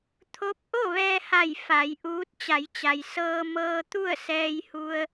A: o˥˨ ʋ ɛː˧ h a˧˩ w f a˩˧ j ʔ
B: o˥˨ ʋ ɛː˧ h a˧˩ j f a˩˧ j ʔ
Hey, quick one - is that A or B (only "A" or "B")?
B